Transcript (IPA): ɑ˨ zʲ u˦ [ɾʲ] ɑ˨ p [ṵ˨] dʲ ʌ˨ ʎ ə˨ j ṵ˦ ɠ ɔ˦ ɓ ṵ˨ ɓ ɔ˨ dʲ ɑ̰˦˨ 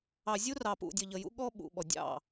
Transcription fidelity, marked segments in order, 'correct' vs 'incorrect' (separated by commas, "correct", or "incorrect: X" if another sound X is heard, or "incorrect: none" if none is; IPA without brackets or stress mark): incorrect: r, correct